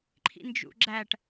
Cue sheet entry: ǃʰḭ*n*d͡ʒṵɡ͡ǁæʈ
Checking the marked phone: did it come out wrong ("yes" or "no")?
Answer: no